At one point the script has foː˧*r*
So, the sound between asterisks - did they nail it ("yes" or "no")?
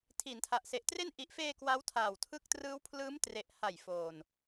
no